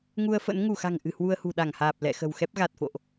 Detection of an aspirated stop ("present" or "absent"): absent